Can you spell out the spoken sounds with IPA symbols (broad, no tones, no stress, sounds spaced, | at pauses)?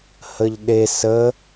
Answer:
h ə ʎ ɗ e s ə